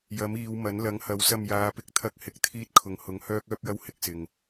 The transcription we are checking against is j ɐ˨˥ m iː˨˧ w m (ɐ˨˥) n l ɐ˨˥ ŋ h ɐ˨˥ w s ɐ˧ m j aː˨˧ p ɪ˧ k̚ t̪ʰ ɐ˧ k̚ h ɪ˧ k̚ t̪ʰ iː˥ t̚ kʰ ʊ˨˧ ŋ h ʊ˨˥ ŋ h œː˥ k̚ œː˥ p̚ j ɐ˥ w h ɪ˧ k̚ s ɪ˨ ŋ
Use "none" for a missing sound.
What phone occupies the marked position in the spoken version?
ɐ˨˥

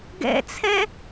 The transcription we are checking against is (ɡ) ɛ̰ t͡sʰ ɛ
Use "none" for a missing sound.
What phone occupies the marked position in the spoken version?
ɡ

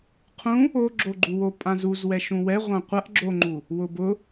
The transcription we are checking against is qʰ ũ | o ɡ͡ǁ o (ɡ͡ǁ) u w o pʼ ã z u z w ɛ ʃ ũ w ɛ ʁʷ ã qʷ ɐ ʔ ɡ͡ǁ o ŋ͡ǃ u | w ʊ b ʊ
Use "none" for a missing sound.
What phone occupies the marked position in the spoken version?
ɡ͡ǃ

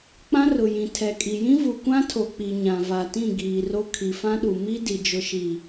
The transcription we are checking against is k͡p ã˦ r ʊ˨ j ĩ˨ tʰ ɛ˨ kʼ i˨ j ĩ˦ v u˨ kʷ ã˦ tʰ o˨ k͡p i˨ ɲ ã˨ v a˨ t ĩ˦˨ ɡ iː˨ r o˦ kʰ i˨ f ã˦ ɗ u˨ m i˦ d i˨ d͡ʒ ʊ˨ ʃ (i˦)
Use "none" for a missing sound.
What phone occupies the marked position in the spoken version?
i˨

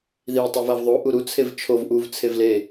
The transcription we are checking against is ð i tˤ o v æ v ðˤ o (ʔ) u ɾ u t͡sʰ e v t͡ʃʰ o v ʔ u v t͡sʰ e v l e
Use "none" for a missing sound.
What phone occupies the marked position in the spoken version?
ʔ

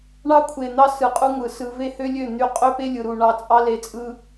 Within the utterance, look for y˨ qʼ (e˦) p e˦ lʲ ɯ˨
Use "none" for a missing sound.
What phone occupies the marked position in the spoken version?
ø˦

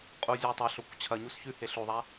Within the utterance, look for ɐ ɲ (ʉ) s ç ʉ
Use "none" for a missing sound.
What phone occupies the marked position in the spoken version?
u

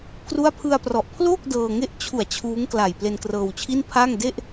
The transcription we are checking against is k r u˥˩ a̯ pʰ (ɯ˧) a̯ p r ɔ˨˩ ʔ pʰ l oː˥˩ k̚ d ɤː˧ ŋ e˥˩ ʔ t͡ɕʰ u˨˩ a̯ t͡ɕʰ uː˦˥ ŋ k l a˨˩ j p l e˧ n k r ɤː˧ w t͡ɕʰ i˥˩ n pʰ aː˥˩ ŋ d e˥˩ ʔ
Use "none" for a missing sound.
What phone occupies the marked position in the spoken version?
ɯ˧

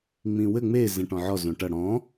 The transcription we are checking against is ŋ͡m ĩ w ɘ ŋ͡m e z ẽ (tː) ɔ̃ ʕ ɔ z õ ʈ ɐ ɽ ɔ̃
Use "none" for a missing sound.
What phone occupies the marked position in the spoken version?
ʈ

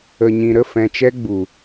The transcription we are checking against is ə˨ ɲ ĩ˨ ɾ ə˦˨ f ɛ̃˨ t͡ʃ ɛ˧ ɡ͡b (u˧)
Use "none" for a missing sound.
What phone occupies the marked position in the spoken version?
u˨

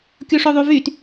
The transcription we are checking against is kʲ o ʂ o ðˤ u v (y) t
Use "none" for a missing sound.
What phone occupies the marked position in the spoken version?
y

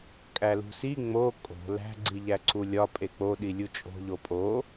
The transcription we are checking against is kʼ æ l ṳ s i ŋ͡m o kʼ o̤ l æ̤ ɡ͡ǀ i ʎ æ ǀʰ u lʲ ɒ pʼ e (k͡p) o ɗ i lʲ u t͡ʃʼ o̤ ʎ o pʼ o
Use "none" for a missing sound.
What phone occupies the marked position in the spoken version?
k͡p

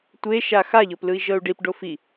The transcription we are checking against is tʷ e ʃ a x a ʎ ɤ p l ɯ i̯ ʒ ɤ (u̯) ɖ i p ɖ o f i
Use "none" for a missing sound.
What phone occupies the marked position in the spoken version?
u̯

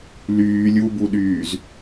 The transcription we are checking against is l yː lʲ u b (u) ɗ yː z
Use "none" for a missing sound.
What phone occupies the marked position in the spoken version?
u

